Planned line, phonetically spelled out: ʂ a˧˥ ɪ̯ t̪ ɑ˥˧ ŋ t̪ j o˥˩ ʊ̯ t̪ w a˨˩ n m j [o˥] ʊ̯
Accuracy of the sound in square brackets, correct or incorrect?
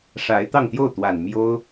correct